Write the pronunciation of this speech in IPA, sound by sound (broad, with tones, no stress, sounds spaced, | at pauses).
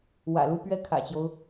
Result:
w ä̰˨˩ l u˥˧ p ɥ ɛ˥˩ kʰ ä̰˨˩ t͡ɕ j o˦ ʊ̯